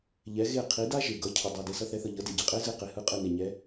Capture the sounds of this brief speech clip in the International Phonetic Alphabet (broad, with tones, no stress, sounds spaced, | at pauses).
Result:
ʎ ɛ˩˥ ɣ e˥˩ qʰ i˩˥ d a˥ ʒ e˩ ɡ ʌ˩˥ cʰ ʌ˩ dˤ i˩ d e˩ s ʌ˧ θ ɛ˩˥ θ ʌ˩ ʎ ʌ˩˥ d e˩ ɟ e˩ qʼ e˥ z ɯ˥˩ q e˩ h ɯ˥˩ qʼ ɯ˥˩ n e˩ ɲ ɛ˩˥